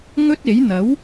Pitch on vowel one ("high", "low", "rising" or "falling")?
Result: high